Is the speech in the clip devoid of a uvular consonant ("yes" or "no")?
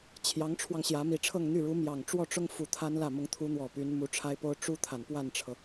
yes